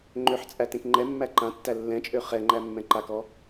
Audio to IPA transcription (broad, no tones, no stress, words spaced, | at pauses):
ŋ͡ǃøħt͡sʼæ tẽkŋ͡ǃɛmːæ ǃãtːæ lːɛ̃t͡ʃʼø χɛ ŋ͡ǃæmːɛ̃ǃakɔ